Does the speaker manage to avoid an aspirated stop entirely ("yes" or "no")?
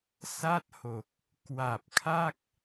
no